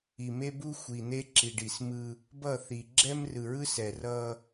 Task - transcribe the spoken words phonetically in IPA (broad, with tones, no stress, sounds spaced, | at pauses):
i˨ m e˦ b u˦ xʷ i˨ n̪ e˦ ǁ i˨ ɖ i˨ s m ɯ˦ | b ʌ˦˨ θ i˨ ɡ͡ǁ ɛ˦ m r ɯ˨ ɹ ɯ˦ s ɛ˨ r ʌ˦